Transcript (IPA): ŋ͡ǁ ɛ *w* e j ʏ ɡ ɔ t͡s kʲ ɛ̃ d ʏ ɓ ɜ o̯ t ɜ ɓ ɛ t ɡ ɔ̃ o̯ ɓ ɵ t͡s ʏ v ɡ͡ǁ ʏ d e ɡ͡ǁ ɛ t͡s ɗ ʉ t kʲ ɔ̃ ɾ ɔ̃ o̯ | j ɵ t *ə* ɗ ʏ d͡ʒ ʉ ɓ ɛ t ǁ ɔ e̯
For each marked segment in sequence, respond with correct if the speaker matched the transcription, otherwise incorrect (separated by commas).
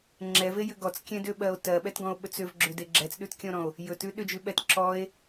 incorrect, incorrect